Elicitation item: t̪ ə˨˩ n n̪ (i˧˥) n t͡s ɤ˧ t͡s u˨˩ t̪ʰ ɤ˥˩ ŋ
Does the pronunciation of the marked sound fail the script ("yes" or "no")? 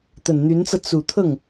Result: yes